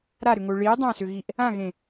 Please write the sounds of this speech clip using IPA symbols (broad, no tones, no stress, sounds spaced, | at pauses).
ɾ a ɾ ʏ ŋ o ɭ i dˤ ã s ʏ ɣ i ʔ | ã ɣ ẽ